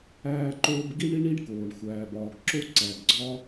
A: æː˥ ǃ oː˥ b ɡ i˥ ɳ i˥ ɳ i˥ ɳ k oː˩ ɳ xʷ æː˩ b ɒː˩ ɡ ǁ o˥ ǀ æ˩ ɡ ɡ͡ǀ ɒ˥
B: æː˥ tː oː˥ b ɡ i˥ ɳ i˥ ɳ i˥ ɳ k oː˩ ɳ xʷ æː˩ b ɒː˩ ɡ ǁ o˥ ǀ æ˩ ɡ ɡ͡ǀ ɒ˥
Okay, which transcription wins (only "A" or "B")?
A